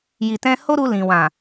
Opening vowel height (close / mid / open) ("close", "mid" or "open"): close